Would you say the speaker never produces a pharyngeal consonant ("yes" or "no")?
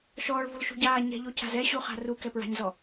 yes